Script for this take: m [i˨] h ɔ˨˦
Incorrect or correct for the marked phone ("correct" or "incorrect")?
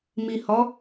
correct